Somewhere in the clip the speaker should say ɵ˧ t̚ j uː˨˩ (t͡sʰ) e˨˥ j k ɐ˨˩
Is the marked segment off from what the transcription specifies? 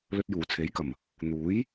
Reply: no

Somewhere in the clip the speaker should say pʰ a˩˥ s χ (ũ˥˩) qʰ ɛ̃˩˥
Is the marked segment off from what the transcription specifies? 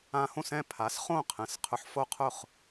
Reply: yes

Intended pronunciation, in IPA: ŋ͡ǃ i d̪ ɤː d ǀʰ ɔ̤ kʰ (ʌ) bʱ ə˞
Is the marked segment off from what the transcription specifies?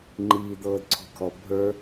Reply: yes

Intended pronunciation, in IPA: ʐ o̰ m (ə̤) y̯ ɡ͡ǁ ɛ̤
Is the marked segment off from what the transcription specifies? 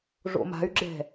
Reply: yes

